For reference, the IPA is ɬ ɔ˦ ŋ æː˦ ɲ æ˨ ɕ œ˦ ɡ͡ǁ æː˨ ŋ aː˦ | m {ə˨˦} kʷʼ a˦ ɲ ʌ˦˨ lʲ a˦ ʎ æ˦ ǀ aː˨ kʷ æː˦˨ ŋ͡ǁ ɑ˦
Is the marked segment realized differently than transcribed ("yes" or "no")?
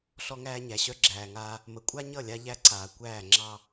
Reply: no